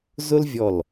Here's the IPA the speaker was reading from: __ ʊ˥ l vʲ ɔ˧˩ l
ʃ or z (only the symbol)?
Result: z